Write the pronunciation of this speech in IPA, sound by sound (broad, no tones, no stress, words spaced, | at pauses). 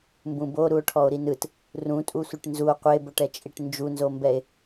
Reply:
mbũbo ɾuo̯ʈʰɔo̯ɾinɯt | rũtʼu sʷiʈnzuo̯ qʷeboʈɛt͡ʃʼiʈ nd͡ʒunzombɛe̯